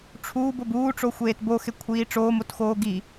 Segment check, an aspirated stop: present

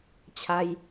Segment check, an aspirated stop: present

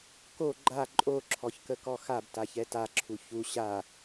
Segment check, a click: present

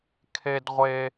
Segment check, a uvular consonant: present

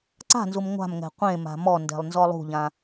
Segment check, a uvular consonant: present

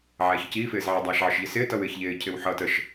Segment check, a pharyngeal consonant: present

